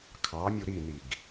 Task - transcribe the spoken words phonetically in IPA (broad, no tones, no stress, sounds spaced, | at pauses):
kʰ ɑ mʲ u ɾ i n i ɡ